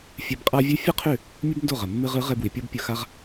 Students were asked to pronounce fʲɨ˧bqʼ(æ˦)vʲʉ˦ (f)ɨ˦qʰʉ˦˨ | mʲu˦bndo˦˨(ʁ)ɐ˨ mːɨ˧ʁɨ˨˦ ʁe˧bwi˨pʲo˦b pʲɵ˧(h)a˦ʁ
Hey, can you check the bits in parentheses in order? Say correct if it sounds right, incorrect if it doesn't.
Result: incorrect: a˦, incorrect: fʲ, correct, incorrect: x

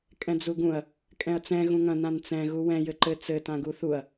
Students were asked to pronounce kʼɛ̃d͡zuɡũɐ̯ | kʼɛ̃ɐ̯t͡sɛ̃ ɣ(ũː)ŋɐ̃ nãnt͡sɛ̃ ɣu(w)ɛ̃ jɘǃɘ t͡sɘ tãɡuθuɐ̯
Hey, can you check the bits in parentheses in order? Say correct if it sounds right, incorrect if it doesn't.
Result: incorrect: ũ, correct

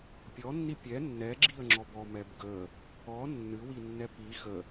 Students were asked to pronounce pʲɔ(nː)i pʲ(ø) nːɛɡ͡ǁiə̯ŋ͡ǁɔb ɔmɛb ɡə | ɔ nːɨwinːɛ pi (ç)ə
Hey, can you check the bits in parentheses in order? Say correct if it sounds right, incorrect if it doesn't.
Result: correct, incorrect: ɛ, incorrect: x

